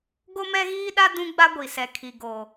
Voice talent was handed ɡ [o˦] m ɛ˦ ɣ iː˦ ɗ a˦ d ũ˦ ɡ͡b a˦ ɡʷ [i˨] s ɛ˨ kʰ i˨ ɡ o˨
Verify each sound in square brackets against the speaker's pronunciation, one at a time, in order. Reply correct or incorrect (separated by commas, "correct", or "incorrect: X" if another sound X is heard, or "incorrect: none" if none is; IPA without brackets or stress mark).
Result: correct, correct